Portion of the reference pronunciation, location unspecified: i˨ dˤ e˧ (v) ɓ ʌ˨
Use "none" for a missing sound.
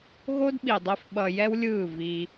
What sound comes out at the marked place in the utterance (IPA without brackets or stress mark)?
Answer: f